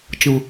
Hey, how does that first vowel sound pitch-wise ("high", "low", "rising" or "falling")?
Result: low